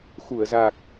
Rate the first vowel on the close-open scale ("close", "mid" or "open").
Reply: close